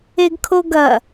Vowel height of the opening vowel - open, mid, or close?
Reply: mid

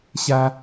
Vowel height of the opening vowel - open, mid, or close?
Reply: open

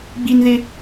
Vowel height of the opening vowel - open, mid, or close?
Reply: close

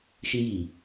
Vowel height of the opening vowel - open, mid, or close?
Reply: close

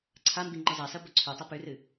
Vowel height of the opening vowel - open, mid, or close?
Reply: open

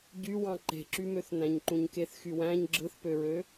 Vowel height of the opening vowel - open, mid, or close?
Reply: close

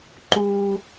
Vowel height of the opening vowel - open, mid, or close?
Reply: close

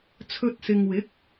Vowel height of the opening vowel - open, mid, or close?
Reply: mid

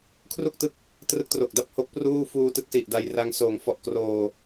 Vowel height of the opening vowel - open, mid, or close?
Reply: close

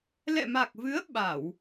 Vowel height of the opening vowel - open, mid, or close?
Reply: mid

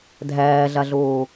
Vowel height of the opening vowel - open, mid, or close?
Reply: open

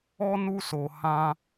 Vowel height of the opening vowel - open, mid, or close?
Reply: mid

